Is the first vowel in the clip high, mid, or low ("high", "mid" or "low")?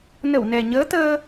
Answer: mid